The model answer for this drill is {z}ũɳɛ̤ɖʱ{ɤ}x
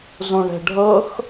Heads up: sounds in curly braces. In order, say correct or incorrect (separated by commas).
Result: correct, correct